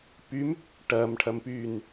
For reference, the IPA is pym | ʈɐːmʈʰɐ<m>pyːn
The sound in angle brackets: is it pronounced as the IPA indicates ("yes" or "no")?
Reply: yes